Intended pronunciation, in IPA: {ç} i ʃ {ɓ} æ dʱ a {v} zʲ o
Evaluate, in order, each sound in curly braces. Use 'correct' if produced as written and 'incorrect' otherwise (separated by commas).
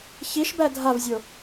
correct, incorrect, correct